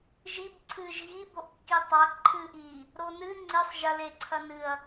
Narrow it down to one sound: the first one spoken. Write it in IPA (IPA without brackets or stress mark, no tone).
ʒ